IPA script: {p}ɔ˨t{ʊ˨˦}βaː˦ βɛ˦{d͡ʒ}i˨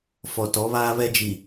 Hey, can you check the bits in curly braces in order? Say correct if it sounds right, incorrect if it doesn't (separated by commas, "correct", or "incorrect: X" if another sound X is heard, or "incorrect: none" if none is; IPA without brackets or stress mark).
incorrect: f, incorrect: ɔ˨˦, correct